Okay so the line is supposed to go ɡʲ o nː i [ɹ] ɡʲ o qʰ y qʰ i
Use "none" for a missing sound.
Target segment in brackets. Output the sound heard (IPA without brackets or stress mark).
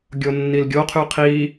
l